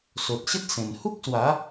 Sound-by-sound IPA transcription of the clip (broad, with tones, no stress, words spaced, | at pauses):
so˨t̚ɕə˦t̚ sẽ˨˩n hu˦k̚swa˨˦